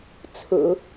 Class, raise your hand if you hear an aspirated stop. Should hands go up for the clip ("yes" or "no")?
yes